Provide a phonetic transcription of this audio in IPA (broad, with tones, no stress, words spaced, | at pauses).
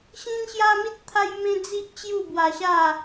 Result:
ɕĩ˦nɕja˦mi˦t̚ t̪ʰa˦jmẽ˦d͡zi˦ʔ t͡ɕju˥˧bwa˧ɕa˥˧